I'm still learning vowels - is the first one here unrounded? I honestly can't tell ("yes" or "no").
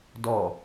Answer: no